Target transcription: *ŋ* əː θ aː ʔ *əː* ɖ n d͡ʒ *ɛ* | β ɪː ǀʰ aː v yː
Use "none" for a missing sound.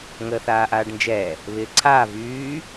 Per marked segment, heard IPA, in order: ŋ, aː, ɛ

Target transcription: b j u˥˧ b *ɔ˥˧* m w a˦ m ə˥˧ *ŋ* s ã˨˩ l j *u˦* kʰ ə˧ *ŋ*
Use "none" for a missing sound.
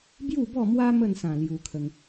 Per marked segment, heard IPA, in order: ɔ˥˧, n, u˧, ŋ

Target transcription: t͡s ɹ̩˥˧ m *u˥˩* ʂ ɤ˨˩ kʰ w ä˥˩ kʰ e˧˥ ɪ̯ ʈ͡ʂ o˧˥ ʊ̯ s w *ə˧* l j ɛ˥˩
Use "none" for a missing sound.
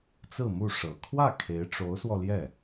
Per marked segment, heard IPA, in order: u˥˩, ɔ˧

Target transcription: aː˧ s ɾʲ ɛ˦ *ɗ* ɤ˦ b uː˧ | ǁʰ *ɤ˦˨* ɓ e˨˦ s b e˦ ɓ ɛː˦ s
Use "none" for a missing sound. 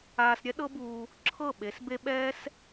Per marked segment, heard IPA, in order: ɗ, ɤ˦˨

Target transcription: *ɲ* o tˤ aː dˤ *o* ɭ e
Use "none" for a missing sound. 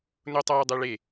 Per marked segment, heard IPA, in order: n, o

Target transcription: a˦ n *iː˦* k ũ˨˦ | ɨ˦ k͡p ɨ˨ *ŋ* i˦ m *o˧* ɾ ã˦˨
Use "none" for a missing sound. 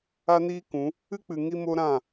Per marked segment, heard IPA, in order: iː˦, ŋ, o˦

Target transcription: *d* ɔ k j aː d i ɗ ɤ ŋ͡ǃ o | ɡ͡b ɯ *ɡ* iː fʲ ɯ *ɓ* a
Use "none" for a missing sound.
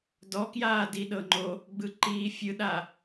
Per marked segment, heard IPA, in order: d, ǃ, ɗ

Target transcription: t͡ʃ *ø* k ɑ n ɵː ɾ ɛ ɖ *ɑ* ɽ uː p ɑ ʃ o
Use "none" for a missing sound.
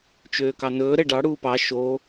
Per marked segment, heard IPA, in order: øː, ɑ

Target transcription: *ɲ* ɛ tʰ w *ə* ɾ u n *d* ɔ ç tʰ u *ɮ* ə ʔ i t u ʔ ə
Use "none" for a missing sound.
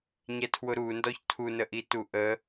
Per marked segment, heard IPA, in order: ɲ, ʊ, d, n

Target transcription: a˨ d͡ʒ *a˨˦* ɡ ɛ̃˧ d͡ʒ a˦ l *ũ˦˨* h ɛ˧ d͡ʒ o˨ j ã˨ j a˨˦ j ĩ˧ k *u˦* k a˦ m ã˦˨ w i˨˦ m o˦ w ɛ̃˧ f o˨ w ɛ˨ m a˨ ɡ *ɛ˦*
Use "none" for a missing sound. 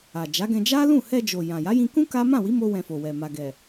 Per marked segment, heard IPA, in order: a˨˦, ũ˦˨, ũ˦, ɛ˨

